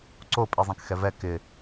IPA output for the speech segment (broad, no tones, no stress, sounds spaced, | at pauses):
ǀ o pʼ i zˤ ɛ̃ k x ɛ v ɛ k ɪ